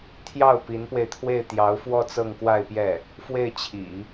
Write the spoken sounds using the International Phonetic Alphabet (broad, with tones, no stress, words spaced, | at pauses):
t̪ʰjɑ˥˩ʊ̯ pi˧˥npwe˧ɪ̯t̪ʰwe˥˩ɪ̯ t̪jɑ˧˥ʊ̯fwɔ˥˧ t͡sɤ˥˧ŋkwa˥˧ɪ̯pjɛ˥˩ | fwe˥˩ɪ̯t͡ɕʰḭ˨˩˦